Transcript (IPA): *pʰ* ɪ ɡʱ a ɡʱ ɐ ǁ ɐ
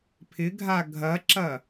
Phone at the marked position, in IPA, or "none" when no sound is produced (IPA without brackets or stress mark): pʰ